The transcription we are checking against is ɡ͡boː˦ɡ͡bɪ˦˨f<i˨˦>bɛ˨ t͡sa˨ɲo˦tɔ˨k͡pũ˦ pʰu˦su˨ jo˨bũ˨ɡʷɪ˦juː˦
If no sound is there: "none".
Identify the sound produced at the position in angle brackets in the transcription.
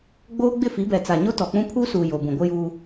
i˨˦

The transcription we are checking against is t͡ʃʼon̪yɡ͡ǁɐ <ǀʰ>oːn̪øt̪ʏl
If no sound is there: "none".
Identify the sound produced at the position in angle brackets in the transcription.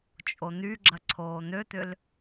ǀʰ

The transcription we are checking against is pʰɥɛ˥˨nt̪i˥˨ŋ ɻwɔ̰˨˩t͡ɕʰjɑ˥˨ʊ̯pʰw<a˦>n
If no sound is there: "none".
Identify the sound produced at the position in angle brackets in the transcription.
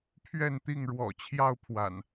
a̰˨˩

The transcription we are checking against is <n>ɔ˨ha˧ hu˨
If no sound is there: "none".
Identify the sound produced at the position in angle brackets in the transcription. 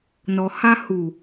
n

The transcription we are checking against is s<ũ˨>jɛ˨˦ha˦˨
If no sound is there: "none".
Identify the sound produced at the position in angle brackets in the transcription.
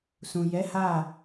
ũ˨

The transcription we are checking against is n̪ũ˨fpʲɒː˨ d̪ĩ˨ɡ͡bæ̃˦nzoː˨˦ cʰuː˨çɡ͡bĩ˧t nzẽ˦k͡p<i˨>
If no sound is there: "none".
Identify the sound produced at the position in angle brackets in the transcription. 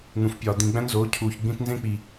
i˨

